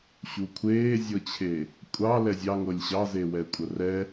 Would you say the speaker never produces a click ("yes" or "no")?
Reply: yes